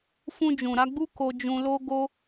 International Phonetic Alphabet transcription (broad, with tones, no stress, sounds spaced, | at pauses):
f ũ˧ d͡ʒ ũ˨ ɾ a˧ ɡ͡b u˦ k o˧ d͡ʒ ũ˧ l o˦ ɡ o˦